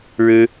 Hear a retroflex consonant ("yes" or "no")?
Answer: yes